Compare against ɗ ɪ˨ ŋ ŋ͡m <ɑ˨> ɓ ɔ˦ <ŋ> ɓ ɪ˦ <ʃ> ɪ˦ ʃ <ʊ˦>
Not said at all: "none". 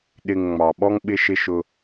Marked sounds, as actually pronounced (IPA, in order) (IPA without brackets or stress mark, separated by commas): ɑ˨, ŋ, ʃ, ʊ˦